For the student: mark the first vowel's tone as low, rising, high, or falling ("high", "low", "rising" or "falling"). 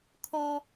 high